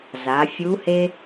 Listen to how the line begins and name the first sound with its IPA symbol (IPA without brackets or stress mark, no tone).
z